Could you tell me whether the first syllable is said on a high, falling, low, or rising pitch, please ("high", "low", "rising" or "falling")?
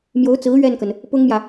rising